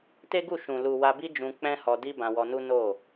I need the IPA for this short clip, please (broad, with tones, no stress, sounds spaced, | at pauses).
t e˦ ɡ u˦˨ ʃ ũ˨ l u˨ w a˧ b i˦ d͡ʒ ũ˧ k͡p ɛ̃˦ h ɔ˧ d i˦ b ã˧ w ɔ˧ n u˦ n o˦˨